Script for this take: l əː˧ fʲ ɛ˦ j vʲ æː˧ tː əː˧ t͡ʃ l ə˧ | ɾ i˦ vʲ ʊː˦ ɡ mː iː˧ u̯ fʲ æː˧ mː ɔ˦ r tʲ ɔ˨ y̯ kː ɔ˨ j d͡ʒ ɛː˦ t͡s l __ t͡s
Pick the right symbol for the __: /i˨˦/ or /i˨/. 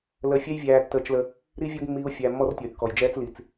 i˨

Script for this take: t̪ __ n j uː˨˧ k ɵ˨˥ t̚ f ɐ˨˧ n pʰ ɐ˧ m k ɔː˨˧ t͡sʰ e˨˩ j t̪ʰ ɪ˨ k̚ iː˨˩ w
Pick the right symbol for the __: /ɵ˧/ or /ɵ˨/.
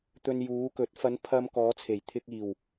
ɵ˧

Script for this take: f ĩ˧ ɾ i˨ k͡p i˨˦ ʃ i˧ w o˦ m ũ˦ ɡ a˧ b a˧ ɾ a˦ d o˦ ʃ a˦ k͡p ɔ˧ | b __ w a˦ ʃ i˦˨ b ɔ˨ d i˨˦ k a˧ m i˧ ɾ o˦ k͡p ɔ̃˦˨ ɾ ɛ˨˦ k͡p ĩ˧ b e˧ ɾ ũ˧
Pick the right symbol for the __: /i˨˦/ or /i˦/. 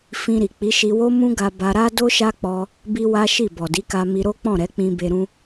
i˦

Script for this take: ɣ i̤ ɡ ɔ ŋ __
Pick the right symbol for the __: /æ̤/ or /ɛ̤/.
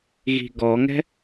ɛ̤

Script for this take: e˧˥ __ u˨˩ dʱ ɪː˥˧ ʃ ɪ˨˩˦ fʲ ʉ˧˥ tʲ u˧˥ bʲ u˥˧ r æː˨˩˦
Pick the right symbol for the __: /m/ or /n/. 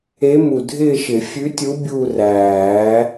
m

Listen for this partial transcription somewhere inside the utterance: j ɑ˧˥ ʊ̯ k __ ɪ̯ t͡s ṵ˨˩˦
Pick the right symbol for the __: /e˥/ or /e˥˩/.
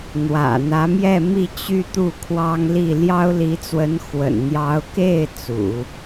e˥˩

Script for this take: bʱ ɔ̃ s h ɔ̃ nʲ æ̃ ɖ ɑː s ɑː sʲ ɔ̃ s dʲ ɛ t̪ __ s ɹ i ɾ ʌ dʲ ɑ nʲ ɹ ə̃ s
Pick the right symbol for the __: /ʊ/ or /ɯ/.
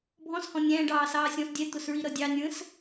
ʊ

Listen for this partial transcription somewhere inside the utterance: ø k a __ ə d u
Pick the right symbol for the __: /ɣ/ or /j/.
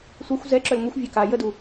j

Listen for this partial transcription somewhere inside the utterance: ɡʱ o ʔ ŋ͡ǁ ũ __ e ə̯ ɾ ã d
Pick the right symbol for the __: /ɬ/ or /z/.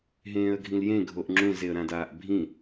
z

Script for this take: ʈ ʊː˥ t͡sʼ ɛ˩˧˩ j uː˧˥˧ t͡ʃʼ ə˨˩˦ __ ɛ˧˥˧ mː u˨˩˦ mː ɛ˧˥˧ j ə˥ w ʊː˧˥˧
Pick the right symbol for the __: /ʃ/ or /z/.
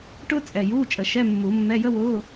ʃ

